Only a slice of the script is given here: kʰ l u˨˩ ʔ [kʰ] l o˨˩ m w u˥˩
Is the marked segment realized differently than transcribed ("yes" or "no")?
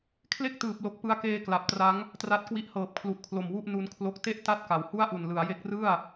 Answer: no